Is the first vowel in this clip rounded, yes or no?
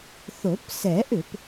yes